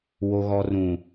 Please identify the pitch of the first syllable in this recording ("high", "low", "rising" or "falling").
low